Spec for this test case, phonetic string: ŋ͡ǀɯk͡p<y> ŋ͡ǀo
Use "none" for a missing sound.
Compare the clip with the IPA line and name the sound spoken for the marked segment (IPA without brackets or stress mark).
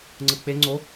e